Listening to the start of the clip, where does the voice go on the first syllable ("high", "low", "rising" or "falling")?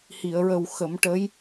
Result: low